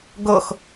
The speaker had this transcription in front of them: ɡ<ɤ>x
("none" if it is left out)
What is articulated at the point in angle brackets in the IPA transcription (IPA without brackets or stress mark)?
ɤ